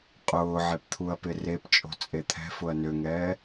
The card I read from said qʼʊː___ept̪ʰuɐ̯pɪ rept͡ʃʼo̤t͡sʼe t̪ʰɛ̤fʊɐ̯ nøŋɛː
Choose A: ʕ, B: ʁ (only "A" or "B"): A